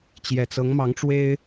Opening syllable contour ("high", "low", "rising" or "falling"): low